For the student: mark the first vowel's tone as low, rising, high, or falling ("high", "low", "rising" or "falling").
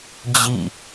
falling